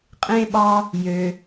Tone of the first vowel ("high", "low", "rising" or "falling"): low